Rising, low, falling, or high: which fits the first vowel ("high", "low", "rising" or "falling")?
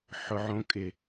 high